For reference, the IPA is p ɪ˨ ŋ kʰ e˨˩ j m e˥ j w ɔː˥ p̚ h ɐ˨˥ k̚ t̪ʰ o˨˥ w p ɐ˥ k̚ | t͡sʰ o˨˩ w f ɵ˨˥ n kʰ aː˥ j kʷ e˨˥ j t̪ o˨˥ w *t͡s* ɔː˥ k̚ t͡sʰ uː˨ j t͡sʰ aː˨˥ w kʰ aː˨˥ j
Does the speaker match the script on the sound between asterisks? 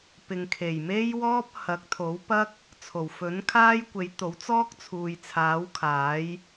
yes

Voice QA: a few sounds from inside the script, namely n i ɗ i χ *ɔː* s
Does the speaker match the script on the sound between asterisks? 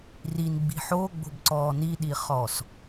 yes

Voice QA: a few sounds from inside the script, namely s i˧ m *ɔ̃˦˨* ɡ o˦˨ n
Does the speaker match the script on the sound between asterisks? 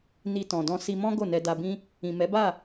no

